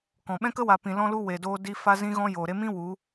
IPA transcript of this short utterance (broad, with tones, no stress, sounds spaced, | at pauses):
k ɔ̃˨ ɓ ɛ̃˦ k ə˦ w a˨ p ĩ˨ l ɔ̃˦ l u˦ w e˨ d oː˧ d i˧ f a˧ z ĩ˧ ɣ ɔ̃˧ j oː˨ ɾ e˧ m ĩ˦ w u˨˦